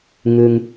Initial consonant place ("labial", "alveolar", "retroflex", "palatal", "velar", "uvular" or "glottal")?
velar